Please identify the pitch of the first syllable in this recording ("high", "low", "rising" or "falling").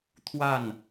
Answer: falling